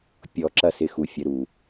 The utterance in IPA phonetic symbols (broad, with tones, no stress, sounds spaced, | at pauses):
pʲ ɔ˧ ǁ ɐ˦ s ɪ˧ x u˨ fʲ ə˨˦ ɾ u˨